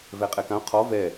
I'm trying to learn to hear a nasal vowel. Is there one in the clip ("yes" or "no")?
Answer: yes